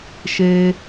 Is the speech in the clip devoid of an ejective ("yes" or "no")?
yes